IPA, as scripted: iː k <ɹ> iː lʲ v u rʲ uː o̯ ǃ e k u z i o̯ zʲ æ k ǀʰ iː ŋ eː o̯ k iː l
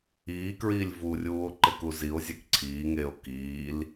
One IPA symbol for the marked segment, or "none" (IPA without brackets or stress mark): ɹ